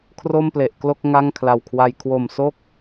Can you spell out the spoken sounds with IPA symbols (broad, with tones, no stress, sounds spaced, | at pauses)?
kʰ r o˥˩ m p l e˨˩ ʔ k l o˥˩ k̚ ŋ a˥˩ ŋ kʰ l a˨˩ w kʰ w a˧ j kʰ w o˨˩ m s o˥˩ k̚